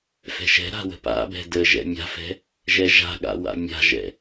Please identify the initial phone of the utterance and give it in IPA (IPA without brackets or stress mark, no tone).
f